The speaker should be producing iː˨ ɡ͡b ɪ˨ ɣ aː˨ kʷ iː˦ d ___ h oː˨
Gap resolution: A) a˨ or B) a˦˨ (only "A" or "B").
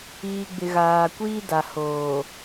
A